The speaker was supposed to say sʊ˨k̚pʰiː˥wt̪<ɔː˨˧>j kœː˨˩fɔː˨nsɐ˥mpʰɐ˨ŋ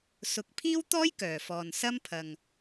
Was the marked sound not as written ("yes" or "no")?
yes